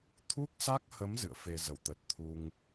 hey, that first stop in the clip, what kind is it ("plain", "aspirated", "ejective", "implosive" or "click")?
aspirated